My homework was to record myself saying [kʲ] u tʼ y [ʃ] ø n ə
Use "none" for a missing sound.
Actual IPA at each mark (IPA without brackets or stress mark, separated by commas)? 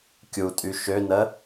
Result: kʲ, ʃ